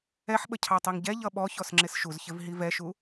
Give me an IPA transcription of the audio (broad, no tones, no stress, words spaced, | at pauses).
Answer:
ɛħɓə cʰɑtˤiŋɟɛ ʎʌɓɔ çɔsŋ͡ǁɪsʃuz çɪvɦivɛʃu